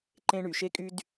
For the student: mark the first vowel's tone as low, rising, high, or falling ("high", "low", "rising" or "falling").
high